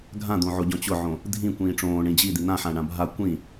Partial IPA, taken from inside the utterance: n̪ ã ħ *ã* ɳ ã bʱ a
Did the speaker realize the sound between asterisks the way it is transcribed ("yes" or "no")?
yes